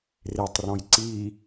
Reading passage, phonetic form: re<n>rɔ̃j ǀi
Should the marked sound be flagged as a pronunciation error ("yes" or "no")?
yes